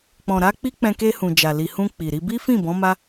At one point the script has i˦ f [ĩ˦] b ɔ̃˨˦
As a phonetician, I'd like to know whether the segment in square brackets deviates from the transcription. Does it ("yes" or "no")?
yes